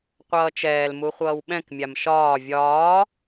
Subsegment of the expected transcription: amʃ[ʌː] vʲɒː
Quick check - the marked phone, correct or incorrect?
incorrect